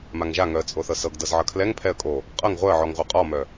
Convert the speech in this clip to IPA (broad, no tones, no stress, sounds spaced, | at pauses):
m a ŋ ʒ a ŋ œ ə̯ t͡sʼ o θ ɤ s ɤ ɡ d ɤ z ʕ ʌ kʰ l ɛ ŋ pʰ ɛ ə̯ kʼ o | qʼ ɤ ŋ ʁʷ œ ə̯ ʕ ɔ ŋ ʁʷ ɤ qʼ ɔ m œ